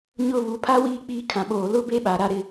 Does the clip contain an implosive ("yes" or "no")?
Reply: yes